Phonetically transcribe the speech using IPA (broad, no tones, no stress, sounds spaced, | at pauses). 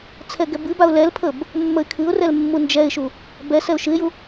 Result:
t͡sʰ ɛ ɡ ɛ b ɨ b a ʊ̯ l ɛ l pʰ ə b | mː ə ɪ̯ kʰ ɨ ʊ̯ r ɛ l mː u n d͡ʒ ɛ ɪ̯ ʃ u | b ɛ s ɛ ʊ̯ ʃ ɨ ɪ̯ j u